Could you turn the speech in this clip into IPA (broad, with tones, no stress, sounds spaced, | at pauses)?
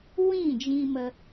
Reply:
w ĩ˦˨ d͡ʒ ĩ˧ m ə˧